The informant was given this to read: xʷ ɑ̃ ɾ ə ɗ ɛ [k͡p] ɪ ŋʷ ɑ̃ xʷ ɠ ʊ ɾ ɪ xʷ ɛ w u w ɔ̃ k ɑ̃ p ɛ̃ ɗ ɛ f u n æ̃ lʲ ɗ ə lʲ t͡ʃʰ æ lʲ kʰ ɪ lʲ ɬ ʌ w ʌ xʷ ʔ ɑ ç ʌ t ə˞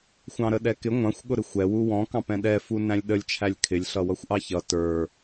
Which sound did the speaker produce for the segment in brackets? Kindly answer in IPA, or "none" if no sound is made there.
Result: k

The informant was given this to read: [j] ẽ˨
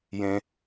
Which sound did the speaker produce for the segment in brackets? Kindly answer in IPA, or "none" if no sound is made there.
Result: j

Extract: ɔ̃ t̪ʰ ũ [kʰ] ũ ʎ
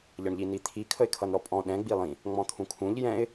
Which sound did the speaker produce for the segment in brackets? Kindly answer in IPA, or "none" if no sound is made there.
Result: kʰ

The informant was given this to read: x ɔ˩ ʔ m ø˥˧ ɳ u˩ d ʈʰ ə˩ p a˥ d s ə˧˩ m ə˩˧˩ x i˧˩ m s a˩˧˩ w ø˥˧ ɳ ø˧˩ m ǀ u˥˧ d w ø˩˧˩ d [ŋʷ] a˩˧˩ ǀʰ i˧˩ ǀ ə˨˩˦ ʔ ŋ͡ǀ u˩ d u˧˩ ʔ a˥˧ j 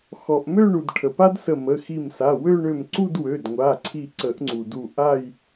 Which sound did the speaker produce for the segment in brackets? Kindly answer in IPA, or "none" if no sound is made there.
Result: ŋʷ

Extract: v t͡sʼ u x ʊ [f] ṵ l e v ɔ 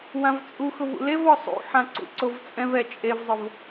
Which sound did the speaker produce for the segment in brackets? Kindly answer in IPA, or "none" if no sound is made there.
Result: v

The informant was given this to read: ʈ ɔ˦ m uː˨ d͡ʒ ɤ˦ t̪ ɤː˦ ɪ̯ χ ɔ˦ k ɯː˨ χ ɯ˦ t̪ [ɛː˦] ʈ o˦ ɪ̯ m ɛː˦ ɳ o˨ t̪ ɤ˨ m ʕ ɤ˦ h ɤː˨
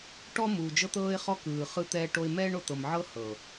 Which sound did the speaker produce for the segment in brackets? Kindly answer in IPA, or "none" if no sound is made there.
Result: ɛː˦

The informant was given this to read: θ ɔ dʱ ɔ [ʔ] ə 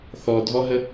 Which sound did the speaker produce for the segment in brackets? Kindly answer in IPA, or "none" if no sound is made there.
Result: ɦ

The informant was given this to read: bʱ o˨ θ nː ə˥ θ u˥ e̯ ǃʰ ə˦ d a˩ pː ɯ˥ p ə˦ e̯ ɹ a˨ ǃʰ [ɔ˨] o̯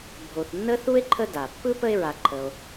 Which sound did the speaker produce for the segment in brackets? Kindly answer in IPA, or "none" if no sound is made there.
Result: ə˨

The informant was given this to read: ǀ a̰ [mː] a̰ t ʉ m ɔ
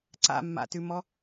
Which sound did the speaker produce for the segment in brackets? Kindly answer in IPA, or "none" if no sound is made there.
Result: mː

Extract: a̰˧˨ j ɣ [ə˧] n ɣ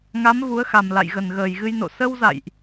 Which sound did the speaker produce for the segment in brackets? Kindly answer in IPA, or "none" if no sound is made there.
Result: ə˨˩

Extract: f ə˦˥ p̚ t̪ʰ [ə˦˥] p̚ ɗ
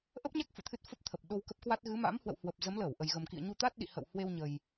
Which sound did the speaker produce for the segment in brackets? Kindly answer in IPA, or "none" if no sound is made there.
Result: ə˨˩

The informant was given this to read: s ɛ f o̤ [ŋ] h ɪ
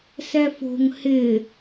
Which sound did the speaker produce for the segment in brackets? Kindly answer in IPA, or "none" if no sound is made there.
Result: ŋ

